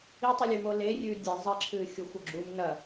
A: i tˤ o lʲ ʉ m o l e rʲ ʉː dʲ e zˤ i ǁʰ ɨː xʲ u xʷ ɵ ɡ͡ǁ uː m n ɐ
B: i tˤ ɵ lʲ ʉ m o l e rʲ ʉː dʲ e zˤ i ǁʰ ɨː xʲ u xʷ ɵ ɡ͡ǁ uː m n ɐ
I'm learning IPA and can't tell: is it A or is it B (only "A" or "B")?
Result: A